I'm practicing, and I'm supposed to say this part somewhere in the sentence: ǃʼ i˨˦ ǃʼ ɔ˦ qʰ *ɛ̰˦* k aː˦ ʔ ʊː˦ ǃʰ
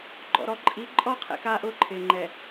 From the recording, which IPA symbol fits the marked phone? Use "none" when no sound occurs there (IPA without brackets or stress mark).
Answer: ɛ̰˦